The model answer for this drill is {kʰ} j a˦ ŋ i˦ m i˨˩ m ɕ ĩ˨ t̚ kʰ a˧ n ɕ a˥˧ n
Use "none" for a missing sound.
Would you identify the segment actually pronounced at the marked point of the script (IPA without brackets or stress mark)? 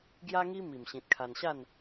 ɡ